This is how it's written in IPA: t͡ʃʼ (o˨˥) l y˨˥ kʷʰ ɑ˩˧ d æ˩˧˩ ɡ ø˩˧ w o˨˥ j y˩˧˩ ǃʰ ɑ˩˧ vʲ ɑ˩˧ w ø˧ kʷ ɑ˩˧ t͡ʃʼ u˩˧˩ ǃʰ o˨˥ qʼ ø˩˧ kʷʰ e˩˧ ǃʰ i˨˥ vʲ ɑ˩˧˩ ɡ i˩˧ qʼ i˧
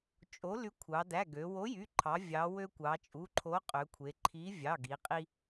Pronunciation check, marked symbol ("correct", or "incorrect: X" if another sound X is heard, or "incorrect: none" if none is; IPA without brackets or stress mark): correct